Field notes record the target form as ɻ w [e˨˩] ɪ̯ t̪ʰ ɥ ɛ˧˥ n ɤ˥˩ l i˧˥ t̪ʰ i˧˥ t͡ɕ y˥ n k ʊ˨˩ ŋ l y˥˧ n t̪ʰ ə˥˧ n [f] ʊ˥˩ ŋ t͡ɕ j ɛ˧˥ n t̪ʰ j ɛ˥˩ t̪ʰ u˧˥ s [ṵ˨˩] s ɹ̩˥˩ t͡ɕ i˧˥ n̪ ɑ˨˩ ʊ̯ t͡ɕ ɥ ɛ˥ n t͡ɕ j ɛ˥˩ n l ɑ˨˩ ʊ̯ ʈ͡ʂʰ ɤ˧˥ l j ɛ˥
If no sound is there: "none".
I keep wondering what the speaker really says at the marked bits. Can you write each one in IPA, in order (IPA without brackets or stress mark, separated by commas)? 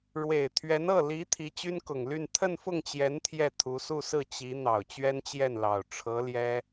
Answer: e˨˩, f, u˥˧